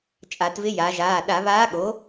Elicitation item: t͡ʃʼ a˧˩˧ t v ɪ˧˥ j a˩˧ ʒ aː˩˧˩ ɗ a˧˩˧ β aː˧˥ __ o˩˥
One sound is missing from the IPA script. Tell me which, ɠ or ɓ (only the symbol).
ɠ